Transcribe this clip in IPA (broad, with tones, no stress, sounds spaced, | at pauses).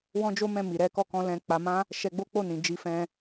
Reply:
w ɔ̃˦ d͡ʒ o˦ m ɛ̃˦˨ m i˨ ɾ ɛ˨˦ k ɔ˦˨ k ɔ̃˧ l ɛ̃˧ k͡p a˧ m ã˦ | ʃ ɛ˧ ɡ͡b o˦ k͡p o˦˨ n ĩ˨ d͡ʒ i˧ f ɛ̃˧